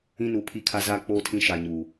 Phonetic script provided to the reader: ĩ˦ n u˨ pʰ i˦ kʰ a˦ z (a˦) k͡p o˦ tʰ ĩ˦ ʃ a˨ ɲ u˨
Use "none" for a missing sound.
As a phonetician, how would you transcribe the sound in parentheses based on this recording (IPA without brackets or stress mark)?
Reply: a˦